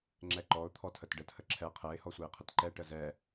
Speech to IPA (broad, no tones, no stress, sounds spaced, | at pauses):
ŋ͡ǁ ɛ ǃ ɔ ʊ̯ t̪ʰ ɔ tʰ ə t ɖ ə t h ə ǁʰ ɛ qʰ ɛ ɪ̯ h ɔ sʷ ɛ ɪ̯ qʰ ə t ǃ ɛ ʈ ə z ɛ